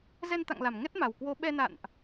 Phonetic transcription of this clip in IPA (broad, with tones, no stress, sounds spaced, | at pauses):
z ɛ˧ n t̪ a̰˧˨ ŋ l a˧˩ m ŋ ɛ˦˥ t̚ m a˨˩ w k w o˨˦ ɓ ɛ˧ n a̰˧˨ n ʔ